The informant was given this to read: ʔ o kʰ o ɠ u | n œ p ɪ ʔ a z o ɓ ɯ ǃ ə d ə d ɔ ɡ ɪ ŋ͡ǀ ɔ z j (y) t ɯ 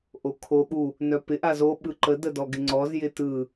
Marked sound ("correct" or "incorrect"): incorrect